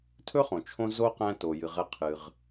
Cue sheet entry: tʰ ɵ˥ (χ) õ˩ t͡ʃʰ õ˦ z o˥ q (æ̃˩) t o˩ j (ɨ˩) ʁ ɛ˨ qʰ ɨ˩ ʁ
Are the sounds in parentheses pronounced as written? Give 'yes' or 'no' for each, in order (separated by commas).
yes, no, yes